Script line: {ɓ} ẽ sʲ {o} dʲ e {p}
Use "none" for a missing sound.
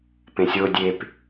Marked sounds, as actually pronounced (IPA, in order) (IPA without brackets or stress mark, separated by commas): p, o, p